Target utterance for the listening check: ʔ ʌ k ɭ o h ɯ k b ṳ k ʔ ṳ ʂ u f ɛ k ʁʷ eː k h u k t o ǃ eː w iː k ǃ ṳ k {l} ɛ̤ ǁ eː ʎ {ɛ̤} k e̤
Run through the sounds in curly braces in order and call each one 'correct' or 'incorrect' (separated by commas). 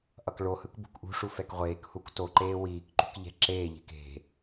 incorrect, incorrect